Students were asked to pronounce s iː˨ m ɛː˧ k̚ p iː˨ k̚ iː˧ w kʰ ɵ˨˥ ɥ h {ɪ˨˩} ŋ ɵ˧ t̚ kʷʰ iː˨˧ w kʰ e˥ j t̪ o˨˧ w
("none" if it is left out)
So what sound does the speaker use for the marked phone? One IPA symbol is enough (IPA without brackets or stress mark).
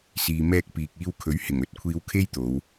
ɪ˨˩